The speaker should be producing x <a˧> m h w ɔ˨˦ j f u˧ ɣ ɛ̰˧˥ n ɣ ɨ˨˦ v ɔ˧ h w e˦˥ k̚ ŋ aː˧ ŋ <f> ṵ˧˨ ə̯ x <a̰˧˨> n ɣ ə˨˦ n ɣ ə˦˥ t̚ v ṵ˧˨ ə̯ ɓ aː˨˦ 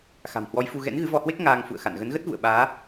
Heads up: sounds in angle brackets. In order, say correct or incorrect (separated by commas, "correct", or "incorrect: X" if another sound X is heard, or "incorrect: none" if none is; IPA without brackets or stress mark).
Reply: incorrect: a̤˨˩, correct, correct